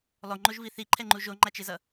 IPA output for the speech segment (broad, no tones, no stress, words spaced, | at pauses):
lˠoŋ͡ǃoʒvi θiǃʰɛŋ͡ǃu ʒoŋ͡ǃat͡ʃezʌ